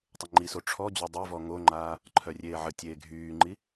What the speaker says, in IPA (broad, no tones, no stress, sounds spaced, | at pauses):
tˤ ə ŋ͡ǃ i s o ʈ͡ʂʰ ɔ d͡ʑ o dˤ e v ɔ ŋ o ŋ͡ǃ aː | ǃʰ œ rʲ eː ʕ ə tʲ eː ɡʱ yː ŋ͡ǃ i